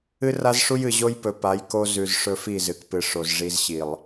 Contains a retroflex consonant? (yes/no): yes